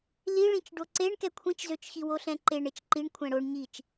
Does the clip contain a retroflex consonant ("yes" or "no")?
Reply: yes